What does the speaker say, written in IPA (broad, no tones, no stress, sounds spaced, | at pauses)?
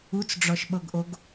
u t͡s ɖ͡ʐ ɔ ʃ ɓ ɤ ɡ ʔ o ɡ